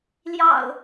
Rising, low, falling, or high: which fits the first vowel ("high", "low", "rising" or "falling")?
low